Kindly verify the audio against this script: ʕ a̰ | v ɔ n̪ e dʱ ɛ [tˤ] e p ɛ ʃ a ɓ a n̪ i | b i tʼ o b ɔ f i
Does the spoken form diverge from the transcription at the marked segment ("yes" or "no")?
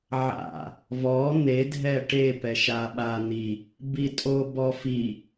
yes